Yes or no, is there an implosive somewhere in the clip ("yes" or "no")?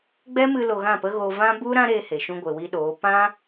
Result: yes